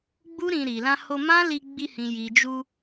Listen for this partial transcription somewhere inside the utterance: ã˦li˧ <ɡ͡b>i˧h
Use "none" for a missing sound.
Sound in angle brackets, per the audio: ɡ͡b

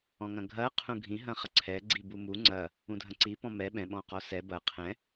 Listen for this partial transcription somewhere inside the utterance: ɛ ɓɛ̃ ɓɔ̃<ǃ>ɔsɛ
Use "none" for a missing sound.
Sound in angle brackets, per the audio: q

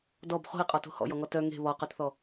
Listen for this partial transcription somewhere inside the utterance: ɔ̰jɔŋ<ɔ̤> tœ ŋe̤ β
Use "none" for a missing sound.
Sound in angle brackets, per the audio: ɔ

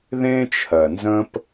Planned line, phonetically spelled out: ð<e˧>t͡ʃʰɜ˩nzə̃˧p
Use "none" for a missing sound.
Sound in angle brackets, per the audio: ẽ˧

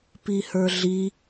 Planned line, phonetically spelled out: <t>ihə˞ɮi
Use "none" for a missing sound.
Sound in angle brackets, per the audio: p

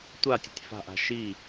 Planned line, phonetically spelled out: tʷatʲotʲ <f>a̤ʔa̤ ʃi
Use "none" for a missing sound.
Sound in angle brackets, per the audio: f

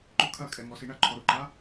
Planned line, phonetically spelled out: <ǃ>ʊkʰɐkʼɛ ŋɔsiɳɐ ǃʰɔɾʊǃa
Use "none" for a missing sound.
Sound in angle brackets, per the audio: ǃ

